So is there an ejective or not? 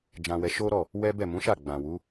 no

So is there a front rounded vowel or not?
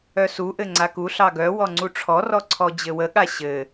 yes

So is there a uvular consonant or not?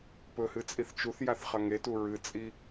yes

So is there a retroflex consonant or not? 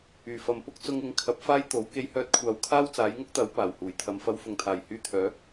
no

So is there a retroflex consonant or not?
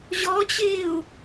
no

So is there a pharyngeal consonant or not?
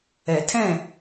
no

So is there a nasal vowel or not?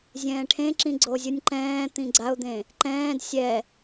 yes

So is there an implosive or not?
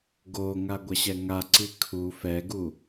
no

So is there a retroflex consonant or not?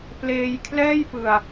no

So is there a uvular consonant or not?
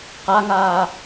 yes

